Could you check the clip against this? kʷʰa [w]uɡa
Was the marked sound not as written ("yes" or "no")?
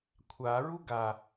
yes